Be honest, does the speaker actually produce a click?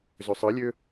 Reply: no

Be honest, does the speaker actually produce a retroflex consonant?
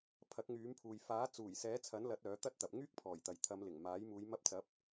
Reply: no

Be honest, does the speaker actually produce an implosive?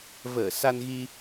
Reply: no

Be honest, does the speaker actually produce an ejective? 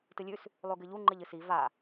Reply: no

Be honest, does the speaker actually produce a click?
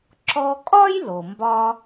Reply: yes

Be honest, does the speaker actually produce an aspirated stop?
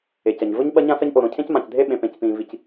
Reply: yes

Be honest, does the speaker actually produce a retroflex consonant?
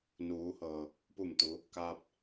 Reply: no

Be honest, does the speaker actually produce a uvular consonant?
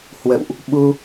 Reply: no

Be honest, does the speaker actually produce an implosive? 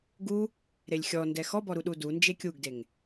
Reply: yes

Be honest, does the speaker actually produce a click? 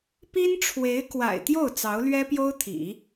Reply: no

